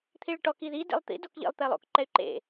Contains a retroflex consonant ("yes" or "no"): yes